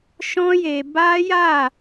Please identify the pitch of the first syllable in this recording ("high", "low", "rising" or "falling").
high